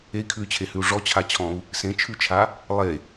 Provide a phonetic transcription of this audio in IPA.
e i̯ kʰ ʉ y̯ t͡ɕʰ e h ʉ u̯ ʐ ɔ t͡ɕʰ a t͡ɕʰ ɔ̃ u̯ | s ẽ t͡ʃʰ ʉ t͡ʃʰ a | lˠ e

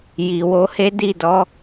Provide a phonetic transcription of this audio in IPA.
j i˨ w o˨˦ h e˦ d i˦˨ d ɔ˨˦

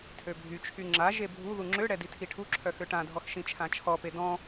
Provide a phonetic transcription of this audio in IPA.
tʰ ø bʱ y t͡ʃʰ y ŋ͡ǁ a ʒ e bʱ u ð u ŋ͡ǁ ø ɽ ɛ d i tʰ i ʈʰ u ǁʰ œ x ø ʈ ã dʱ ɔ x ʃ ĩ t͡ʃʰ ã t͡ʃʰ ɔ p e d ɔ̃

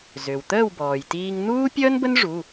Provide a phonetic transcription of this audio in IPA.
z ø˩ w t̪ əː˥˨ w b ɔː˩ j t iː˧ ŋ n̪ uː˥ pʲ əː˥ n b ə˥ n ʐ u˩˧˩

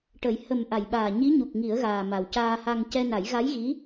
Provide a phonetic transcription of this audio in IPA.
ʈ ə˨˩˦ j h ə˨˩ m ʔ a˨˩˨ j ɓ aː˨˩ ɲ i˧˥ ɲ u˨˩ k̚ ŋ i˨˩˦ ə̯ ɣ aː˨˩ m a˨˩ w c aː˧ h a˧ ŋ c ɛ˧ n a˨˩˦ j ɣ a˧˥ j ɣ i˧˥

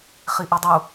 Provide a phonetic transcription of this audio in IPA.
χ i ʔ i dˤ u

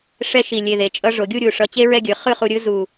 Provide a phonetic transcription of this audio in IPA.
ʂ ɛ˥ ʃ i˧˩ lʲ e˧˩ ð e˩˧ t͡ʃʼ ʌ˧ ʐ o˩˧ ɡʲ u˥˧ ɾʲ u˧˩ ʂ ʌ˧ t͡ɕ e˥ ɹ ɛ˥˧ ɡʲ ɯ˩˧ χ ɯ˥˧ χ u˧ ɾʲ ɯ˥ z u˧˩

